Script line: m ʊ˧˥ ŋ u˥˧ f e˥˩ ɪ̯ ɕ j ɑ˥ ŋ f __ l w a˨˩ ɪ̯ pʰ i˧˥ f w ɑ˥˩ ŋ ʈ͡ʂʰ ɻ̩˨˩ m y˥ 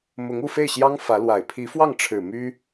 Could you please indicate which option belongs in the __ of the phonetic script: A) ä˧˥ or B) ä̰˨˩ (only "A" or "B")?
A